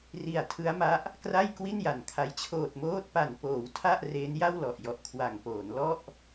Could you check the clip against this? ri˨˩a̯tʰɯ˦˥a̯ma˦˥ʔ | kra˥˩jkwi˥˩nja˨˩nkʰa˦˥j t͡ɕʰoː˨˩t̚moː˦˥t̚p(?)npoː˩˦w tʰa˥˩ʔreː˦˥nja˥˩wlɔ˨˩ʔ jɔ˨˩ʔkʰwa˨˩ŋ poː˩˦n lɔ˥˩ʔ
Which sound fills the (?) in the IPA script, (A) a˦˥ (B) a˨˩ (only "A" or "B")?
B